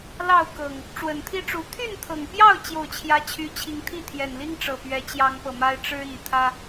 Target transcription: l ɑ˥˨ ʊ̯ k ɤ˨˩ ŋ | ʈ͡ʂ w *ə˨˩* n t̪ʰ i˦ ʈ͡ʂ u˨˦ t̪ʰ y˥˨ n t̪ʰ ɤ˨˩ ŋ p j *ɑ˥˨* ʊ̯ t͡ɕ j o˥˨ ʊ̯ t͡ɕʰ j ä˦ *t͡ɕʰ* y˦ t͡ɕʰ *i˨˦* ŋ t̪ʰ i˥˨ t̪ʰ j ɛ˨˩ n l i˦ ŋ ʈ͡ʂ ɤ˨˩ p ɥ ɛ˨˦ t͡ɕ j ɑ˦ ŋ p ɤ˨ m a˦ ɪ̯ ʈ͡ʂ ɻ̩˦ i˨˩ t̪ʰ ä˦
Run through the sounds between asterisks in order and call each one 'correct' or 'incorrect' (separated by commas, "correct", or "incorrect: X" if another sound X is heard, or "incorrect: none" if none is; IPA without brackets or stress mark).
correct, correct, correct, correct